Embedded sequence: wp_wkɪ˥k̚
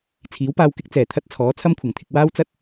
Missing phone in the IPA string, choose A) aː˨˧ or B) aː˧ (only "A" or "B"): B